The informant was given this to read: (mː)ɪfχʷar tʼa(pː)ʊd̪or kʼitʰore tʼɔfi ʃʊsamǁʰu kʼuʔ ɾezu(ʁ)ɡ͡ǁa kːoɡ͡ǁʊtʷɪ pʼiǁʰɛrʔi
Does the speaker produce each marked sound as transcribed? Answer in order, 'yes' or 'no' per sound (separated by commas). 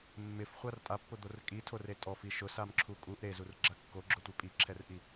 yes, yes, no